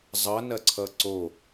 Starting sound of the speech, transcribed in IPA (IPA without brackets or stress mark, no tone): zˤ